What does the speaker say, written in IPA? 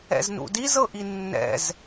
ɛ̰ z n ṵ d i z ɤ ʔ i nː ɛ̰ z

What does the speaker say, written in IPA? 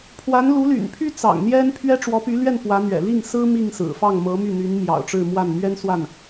pʰ w a˧˥ n l u˧˥ l y̰˨˩ n pʰ y˥ t͡s ɑ̰˨˩ ŋ n̪ j ɛ˥ n pʰ ɥ ɛ˥ ʈ͡ʂ w ɔ˧˥ p y˧˥ l ɥ ɛ˥˩ n p w ä˧˥ n̪ ɥ ɛ̰˨˩ l i˥˩ ŋ s ɹ̩˥ m i˥˩ ŋ s ɹ̩˨˩ f ɑ˥˩ ŋ m ɤ˧˥ m y˥˩ n̪ y˧˥ n m j ɑ̰˨˩ ʊ̯ ʈ͡ʂ ɻ̩˥˧ m w a˥˩ n m ɥ ɛ˥ n s w a˥˩ n

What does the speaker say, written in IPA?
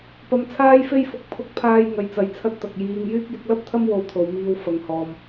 p ɐ˧ m t͡sʰ aː˥ j f e˥ j f ʊ˧ k̚ pʰ ʊ˧ k̚ pʰ aː˧ j ŋ ɐ˧ j t͡s ɐ˨˧ j t͡sʰ ɐ˥ t̚ t̪ ɐ˨ k̚ j iː˧ ŋ j yː˥ k̚ j ɪ˨˥ k̚ l ɐ˥ p̚ t̪ʰ ɐ˥ m w o˧ w t̪ʰ o˨ w m iː˧ w f ɐ˨ ŋ h ɔː˨ m

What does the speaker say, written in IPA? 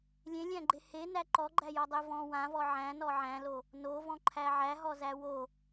lʲ ẽ lʲ æ̃ ɡ͡ǃ e h e n æ ǃ ɔ ɡ͡ǃ æ j ɔ dˤ e v ɔ̃ w ã v ɔ ʕ æ̃ n ɔ ʕ æ̃ l o | n o v ɔ̃ ǃʰ æ ʕ æ ɦ ɔ z æ w o

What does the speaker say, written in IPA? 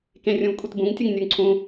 k ẽ rʲ ũ v kʷʼ i t b ũ ŋ tʲ ə ŋ nʲ ə˞ ŋ ǀʰ ũ

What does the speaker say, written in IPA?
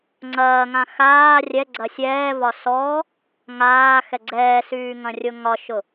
ŋ͡ǀ ɐː ŋ ã x aː rʲ ɛ ɡ͡ǀ ɐ sʲ ɛː v ɒ s ɔ | ŋ aː x ɛ ɡ͡ǀ ɛː s yː ŋ ɐ̃ rʲ ʊ ŋ ɒ ʃ ʊ

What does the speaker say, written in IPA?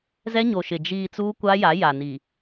z ɛ˦ ɲ o˨ ʃ ɪ˨ d͡ʒ iː˨ t͡s uː˦ kʷ a˦ j a˨˦ j a˨ n i˨

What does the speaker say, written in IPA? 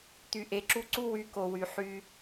t̪ y˧ ʔ e˧ ǁ u˦ ǀ u˦ w y˧ k o˨ w y˨ ħ y˧

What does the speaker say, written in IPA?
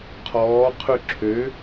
qʰ ɔː qʰ ʉ ǁʰ ø

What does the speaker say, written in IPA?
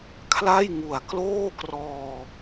kʰ l a˥˩ j ŋ u˨˩ a̯ k l oː˥˩ k r ɔː˧

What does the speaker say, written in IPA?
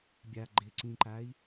bʲ a ɡ͡ǃ ɪ ǀ ĩ ǃ a i̯

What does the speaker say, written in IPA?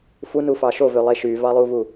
f u n u f ɑ ʃ o v ø lˠ e ʃ y v ɑ lˠ u v u

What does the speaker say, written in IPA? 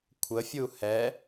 kʷʰ ə fʲ u h ɛ

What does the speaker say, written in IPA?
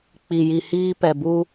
k͡p i˨ j i˨ h iː˦ p ɛ˨ b u˦

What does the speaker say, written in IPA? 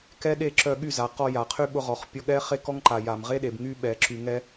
k ɛ˦ ɗ e˦˨ ǁ œ˧ ɠ y˦˨ z a˨ q ɔ˧ j a˨ qʰ y˦ ɓ ʊ˦ ʁ ɔ˨ χ pʲ ɔ˧ ɠ ɛ˦ χ e˦ k ɔ˦ ŋ ǃ a˨ j a˨ m ʁ e˦ ɗ e˨ b ŋ y˦ ɓ ɛ˨ ǁ y˨ ŋ ɛ˧

